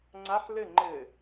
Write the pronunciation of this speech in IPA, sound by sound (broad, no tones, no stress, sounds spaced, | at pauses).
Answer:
ŋ͡ǀ a ħ l ɘ ŋ͡ǃ ɘ